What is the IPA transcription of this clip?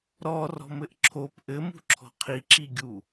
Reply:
ɾ ɔ r ɔ̤ m ɘ ʔ ǁʰ o p ʔ ɘ m ṳ ǁʰ ɔ̤ qʰ i ǁ i ɡʲ u

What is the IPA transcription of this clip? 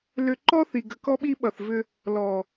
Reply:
l ʏ˨ ǃ ɔ˦ θ i˨ ɡ ə˨ k ɔ˦ ɓ i˦ ɓ ʌ˨ θ v ʏ˦ | l ɔ˨

